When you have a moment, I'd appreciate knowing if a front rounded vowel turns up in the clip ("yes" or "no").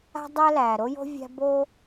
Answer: no